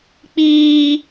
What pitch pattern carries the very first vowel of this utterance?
high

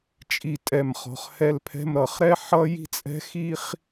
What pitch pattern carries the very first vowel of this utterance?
low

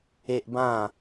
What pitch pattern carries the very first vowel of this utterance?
high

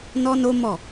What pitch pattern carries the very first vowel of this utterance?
high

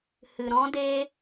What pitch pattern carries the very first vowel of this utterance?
low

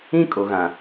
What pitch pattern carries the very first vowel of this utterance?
high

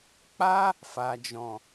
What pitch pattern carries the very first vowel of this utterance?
high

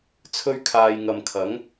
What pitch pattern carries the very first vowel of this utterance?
high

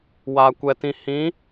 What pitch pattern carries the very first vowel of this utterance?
low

